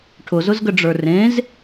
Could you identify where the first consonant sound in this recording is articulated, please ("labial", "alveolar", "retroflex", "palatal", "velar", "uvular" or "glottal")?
retroflex